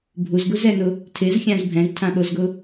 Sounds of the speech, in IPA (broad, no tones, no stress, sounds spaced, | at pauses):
bʱ u z ɡ u z ɛ n ʊ | tʰ ɪ z xʲ ã z bʱ ɛ̃ z tʰ ã ɓ o z ɡ ʊ